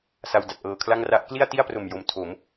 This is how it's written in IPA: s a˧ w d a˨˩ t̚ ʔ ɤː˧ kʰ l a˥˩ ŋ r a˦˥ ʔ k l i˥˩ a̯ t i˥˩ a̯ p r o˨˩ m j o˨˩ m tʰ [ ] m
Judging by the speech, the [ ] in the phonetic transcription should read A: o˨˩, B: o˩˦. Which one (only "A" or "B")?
B